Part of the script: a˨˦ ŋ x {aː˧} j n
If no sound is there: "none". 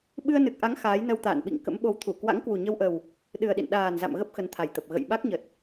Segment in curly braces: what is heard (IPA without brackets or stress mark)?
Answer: aː˨˦